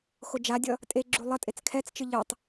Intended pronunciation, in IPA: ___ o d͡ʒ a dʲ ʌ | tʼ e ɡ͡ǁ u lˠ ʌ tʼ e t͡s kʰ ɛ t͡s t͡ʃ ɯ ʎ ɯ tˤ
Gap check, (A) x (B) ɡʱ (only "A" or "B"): A